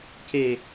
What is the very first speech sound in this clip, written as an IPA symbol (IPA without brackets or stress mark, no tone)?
c